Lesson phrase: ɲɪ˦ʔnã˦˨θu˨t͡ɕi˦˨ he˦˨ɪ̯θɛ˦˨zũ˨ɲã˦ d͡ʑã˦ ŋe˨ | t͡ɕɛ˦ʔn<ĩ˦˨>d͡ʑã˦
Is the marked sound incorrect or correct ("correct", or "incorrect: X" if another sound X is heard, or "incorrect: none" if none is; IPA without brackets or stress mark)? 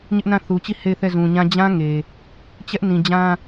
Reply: incorrect: ĩ˨